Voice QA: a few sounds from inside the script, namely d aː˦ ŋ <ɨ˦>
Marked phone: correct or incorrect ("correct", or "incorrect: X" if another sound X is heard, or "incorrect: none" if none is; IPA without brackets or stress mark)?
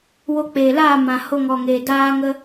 incorrect: ə˦